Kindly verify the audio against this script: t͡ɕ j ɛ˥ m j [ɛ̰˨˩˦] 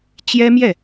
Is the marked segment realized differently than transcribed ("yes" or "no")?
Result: yes